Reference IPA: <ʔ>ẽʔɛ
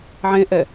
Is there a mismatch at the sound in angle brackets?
yes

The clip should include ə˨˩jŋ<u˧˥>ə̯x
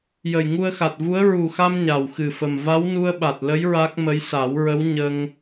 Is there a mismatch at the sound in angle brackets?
yes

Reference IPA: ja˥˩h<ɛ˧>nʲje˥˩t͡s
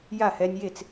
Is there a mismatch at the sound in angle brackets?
no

